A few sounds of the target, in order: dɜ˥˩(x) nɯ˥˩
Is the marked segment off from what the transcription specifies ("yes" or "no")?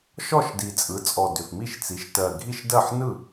yes